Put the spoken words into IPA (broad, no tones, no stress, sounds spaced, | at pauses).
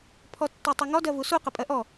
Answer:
pʰ ɔ tː ɔ tˤ u ŋ ɔ d ɜ v u s u q ə pʼ ɜ ʔ ɔ